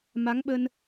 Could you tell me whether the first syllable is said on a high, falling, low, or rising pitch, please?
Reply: rising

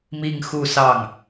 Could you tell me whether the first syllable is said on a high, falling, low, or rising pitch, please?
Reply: falling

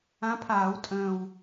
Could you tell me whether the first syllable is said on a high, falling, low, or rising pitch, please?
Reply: rising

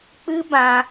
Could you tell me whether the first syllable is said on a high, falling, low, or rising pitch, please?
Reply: high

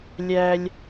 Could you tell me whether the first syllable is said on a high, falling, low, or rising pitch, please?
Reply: high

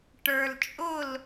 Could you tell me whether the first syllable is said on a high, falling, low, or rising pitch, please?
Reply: low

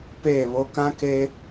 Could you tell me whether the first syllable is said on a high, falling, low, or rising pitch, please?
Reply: falling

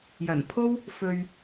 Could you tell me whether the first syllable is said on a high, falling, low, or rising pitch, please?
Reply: low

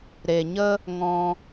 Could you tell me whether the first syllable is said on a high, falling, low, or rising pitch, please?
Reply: low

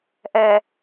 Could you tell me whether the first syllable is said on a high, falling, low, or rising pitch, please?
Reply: low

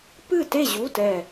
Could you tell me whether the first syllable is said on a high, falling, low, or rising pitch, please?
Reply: falling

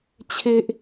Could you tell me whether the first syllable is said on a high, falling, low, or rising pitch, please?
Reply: high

